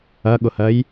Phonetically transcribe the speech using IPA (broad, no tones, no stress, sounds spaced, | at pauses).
ɐ ɠ ʊ h ɜ j